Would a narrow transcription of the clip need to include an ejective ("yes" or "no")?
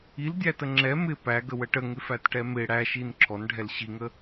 no